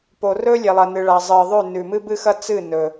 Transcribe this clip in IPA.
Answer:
p o˨ r ɵ˦ lʲ e˨ lˠ ɐ˨ n ɨ˨ ɭ a˨ zˤ ɨ˨ ðˤ ʉ˦˨ n ʉ˨ m ɨ˦ b ɨ˦ x ɐ˦ t͡s ɨ˦˨ n ɵ˨

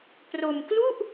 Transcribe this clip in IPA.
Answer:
p r o˧ m k l u˥˩ ʔ

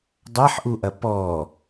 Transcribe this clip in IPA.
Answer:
dˤ a ħ ʔ u ʔ ɐ p ɔ

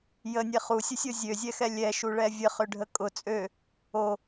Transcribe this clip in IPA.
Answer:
j ə nʲ ɛ χ u sʲ ə sʲ o zʲ ø zʲ ɛ x ɛ lʲ ɛ ʃ u ɭ ɛ vʲ ə χ ø ɖʱ ə kʼ ʊ t͡sʼ ø | o

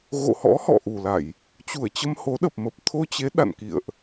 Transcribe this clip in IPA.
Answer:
ɣ o̰˧˨ h ɔ̰˧˥ h ɔ̰˧˨ ʔ u˨˩ l a˧˩˨ j | t͡ɕ u˧˩ ə̯ t͡ɕ ə˧ m h o˨˦ ɗ ə˨˩ p̚ m ə˨˩ p̚ t̪ʰ o˧ t͡ɕ e˨˦ ɗ a̰˧˨ n k ḭ˧˨ ə̯ ʔ

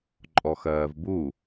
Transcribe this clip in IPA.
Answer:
ǃʼ ɔ x ɜː v b u

